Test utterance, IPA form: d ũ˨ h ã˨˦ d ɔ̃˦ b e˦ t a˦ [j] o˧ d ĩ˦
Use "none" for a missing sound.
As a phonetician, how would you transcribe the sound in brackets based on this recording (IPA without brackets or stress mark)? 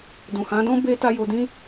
j